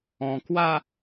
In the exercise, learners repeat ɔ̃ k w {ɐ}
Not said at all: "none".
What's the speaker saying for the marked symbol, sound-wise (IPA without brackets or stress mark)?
a